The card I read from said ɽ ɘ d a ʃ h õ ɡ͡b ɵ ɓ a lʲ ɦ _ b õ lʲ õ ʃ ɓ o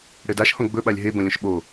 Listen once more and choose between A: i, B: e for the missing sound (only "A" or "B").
B